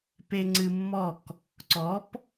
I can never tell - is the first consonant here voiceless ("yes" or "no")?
yes